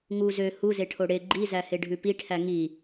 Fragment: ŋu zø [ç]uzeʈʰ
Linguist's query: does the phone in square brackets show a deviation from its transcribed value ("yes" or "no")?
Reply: yes